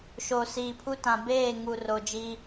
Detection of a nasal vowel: present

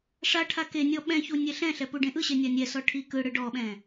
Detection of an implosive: present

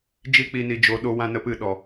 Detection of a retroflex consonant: absent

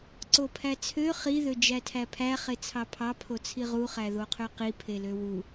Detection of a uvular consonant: present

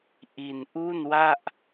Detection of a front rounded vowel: absent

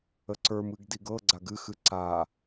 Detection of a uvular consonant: absent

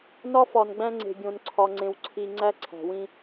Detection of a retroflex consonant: absent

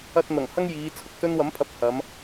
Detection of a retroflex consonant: absent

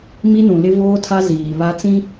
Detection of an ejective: absent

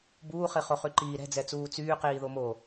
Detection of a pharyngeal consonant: absent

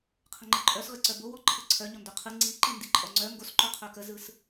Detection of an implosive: absent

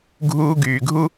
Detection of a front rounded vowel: present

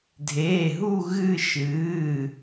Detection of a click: absent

